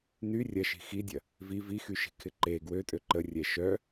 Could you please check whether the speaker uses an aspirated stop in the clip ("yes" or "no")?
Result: yes